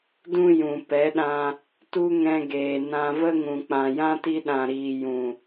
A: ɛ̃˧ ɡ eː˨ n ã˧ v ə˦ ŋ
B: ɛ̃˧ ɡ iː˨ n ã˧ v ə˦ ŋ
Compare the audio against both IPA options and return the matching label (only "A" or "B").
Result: A